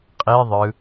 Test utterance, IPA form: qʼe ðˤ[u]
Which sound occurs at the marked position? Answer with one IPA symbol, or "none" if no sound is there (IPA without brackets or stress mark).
ɯ